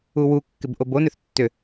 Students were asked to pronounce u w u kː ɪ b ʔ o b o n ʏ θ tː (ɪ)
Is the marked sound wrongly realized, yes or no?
yes